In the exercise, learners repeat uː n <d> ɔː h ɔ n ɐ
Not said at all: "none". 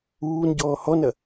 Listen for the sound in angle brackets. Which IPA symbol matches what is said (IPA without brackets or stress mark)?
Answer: ɟ